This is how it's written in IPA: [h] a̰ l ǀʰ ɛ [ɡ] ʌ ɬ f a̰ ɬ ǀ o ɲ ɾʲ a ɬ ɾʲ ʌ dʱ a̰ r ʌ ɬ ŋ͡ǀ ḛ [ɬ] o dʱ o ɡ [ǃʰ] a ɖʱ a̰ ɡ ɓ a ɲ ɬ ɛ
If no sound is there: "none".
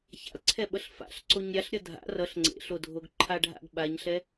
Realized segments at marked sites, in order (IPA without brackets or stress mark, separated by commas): ç, ɓ, ɬ, ǃʰ